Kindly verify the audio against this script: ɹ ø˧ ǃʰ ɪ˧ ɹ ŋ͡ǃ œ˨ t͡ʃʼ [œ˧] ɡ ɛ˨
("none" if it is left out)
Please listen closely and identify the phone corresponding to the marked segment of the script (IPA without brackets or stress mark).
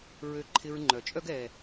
œ˦